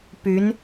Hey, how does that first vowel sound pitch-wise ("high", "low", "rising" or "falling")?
rising